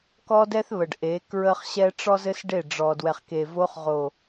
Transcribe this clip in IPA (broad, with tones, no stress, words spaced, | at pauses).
kɔ˦dɛ˦θβə˨ɖ ʔe˨˦kɹə˦χɕɛ˦ ʈ͡ʂɔ˦zɘ˦s ɖe˦˨ɖ͡ʐɔ˨ dwɛ˨χke˨vo˧χʁo˨